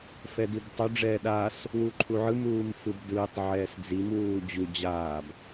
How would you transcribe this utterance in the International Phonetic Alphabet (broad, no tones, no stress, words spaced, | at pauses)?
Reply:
fɛdibtˤu ɖ͡ʐɛːɗaːs | wuǃʰuʕɯm uːmfɯbdɯːtˤ ʕɛːsd͡zim wuːd͡ʑu d͡ʑaːb